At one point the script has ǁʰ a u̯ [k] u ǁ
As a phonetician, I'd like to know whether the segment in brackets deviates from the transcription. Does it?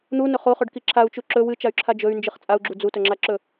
yes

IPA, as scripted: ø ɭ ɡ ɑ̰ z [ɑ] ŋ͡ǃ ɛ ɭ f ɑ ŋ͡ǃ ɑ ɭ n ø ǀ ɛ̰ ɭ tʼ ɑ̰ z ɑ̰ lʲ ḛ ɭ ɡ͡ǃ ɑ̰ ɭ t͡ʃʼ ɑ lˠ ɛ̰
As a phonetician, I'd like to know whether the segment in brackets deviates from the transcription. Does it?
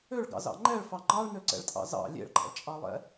yes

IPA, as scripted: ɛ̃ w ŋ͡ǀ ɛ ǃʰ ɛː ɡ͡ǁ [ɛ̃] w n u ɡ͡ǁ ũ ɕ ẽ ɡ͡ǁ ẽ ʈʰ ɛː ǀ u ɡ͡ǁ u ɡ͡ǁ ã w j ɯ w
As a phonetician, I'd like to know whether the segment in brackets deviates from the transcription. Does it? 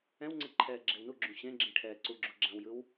yes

